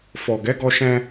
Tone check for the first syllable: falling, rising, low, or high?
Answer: low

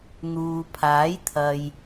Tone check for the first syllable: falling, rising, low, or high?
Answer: low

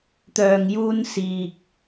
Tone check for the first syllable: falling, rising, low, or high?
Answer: low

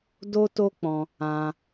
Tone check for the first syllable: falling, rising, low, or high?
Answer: high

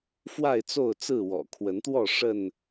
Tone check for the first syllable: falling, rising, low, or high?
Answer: falling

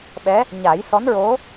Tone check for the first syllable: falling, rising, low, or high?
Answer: rising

